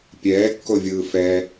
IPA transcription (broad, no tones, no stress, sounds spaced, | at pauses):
pʲ ɛː kː o vʲ ɯː f ɛ